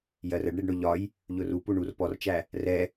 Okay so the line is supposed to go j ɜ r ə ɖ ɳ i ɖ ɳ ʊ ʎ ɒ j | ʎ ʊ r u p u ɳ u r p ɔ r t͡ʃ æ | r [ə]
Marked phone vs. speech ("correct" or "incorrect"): incorrect